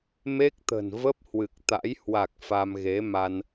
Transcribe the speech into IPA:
m e˦˥ k̚ t̪ ə̤˨˩ n v ə˦˥ p̚ h w ɨ˨˩ k̚ t̪ a̰˧˥ j h w a˨˩ k̚ f a˧ m ɣ e˨˦ m a˧ n

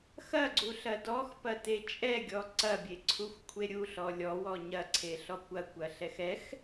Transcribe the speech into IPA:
x ɐ ɡ͡ǀ u ɬ ɐ d ɔ x p ɐ t e t͡ʃʼ ɛ ɡʲ ɔ ǀ ɐ bʲ e ǀʰ u xʷ kʷʰ e ɾʲ u ɬ ɔ lʲ ɔ w ɔ ɲ ɐ ǀʰ e ɬ ɔ kʷ ɐ kʷ ɐ ɬ ɛ x ɛ x

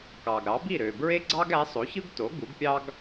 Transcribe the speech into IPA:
k ɑ˩ ɡ ɾ ɑ˩˥ b i˥˩ ɾ ø˩ b ɹ e˥ ɡ͡ǀ ɑ˥ ɡ æ˩˥ sˤ o˩˥ ç ɯ˥ ɡ t o˩˥ ɡ u˩˥ ɡ pʲ ɑ˥ ɡ

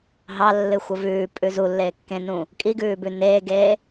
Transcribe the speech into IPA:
ɦ ɑ lː ɨ xʷ ə v ʉː pʼ ʉ z u lː eː kː ẽ n ũ | kʼ i ɡ ʉː b ʉ n eː ɡ eː

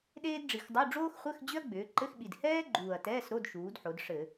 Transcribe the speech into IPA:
ɗ eː˥ d ɖ͡ʐ i˨˩ x dˤ u˧˥˧ ɖ͡ʐ oː˥ x χʷ ɘ˧˥˧ x d͡ʑ ʏ˥ ɐ̯ ɡ͡b ʏː˩˧ ǃ ɘ˧˥˧ x ɓ i˨˩ d h ɛː˥ ɡ͡ǃ uː˨˩ ɐ̯ t ɛː˧˥˧ s ɾ o˧˥˧ d ʃ uː˩˧ d ħ o˩˧ d ʂ ɘ˧˩˧

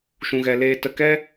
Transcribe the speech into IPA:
ʃ ũ˧ ɣ ɛ˧ l eː˧ t ə˧ k ɛ˦

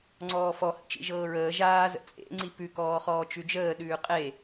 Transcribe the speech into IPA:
ŋ͡ǀ ɔː f ɔ h ə̰ t͡ʃ ḭ ʒ ɤː ɹ əː ʒ aː z ə̰ t͡sʼ ḛ ŋ͡ǀ i p ʉ k ɔː χ ɔː t͡ʃ ʉ d͡ʒ əː ɗ ʉː qʼ e

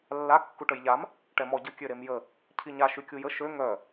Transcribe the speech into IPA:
lː a kː u ʈ ə j ʎ a m | ʈ ɛ m ɔ ɟ ə kʲ ø ɾ e m j ə | cʰ i ɲ a ʃ y kʲ u j ə ʃ ø ŋ œ

